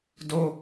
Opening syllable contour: high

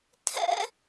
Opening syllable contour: high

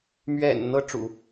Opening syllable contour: low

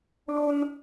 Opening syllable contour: high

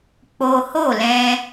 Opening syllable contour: high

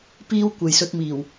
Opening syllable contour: high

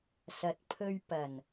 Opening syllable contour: low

